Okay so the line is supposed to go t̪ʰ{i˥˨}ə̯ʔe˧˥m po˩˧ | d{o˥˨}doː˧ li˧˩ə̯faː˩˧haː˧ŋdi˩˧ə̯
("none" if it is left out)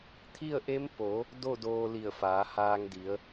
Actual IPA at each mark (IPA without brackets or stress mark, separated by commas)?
i˥˨, o˥˨